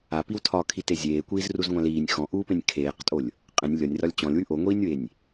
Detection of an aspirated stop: present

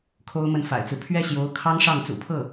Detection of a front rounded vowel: absent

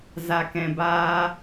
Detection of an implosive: absent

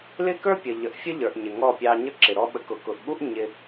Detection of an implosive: present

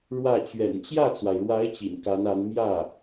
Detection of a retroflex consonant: present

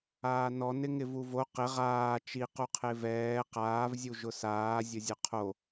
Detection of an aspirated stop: present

